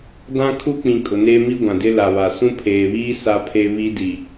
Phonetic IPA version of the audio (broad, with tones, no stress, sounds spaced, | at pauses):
d ã˦ kʰ u˦ k͡p ĩ˨ kʼ ʊ˨ n eː˦ m i˦ ɡʷ ã˨ d ɪ˦ l a˨ β a˨ s ũ˦ pʰ eː˨ β iː˦ s a˦ pʰ e˦ β i˦ d i˨